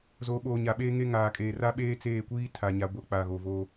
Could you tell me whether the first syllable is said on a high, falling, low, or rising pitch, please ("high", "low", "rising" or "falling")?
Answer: rising